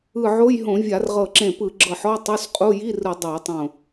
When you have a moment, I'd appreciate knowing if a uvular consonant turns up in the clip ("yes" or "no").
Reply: yes